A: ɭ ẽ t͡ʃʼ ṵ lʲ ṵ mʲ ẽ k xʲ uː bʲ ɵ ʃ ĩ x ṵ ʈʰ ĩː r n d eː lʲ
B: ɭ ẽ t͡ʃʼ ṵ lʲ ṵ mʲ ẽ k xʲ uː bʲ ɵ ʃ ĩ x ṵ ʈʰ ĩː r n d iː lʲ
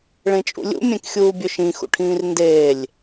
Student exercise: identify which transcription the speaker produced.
A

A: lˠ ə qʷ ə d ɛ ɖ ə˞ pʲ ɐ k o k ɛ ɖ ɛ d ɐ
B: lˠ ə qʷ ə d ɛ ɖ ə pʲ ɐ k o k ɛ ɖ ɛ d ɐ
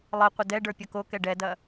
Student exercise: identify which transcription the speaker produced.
A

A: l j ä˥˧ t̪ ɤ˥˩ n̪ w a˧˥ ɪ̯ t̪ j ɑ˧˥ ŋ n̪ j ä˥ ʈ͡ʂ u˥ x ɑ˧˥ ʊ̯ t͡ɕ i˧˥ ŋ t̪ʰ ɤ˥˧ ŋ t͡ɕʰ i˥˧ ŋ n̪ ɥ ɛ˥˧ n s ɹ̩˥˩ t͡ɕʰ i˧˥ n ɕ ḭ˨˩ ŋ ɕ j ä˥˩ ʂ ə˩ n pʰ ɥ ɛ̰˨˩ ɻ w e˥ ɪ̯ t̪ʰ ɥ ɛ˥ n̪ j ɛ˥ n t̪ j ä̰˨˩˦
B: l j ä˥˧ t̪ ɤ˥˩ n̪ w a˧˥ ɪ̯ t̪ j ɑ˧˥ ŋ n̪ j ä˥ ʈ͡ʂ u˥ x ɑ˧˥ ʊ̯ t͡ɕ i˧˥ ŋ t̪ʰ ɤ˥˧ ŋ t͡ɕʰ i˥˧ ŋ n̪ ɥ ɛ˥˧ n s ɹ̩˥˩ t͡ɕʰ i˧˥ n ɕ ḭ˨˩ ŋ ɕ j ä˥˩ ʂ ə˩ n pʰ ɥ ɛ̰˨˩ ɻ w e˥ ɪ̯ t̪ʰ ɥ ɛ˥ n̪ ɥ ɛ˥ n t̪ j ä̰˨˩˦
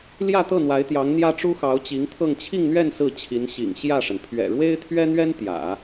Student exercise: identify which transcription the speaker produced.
B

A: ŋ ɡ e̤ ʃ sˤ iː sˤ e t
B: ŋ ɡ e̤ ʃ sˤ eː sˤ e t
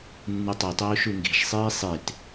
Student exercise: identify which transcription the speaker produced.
A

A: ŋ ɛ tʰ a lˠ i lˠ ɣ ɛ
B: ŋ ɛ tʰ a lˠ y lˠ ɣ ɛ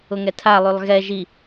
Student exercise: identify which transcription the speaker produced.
B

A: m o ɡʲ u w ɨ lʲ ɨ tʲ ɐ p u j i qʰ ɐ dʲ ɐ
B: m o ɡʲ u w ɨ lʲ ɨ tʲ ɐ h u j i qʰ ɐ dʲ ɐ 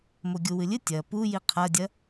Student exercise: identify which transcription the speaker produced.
A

